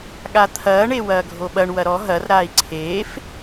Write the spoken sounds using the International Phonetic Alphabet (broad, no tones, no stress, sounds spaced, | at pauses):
ɠ a t̪ʰ ɐː ɳ e w ɐː ɡʱ o ɓ ɐ ɳ w ɐ ɾ ɔ ɦ ɐ r ɾ aː i̯ ǀʰ eː f